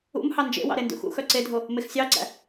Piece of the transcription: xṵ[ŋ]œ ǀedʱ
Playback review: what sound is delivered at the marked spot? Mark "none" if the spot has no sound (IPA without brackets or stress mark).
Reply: x